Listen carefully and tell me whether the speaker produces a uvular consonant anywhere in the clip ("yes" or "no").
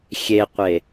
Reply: yes